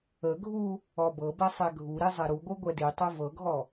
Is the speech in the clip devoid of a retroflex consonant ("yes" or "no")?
yes